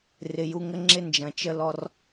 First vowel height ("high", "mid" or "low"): high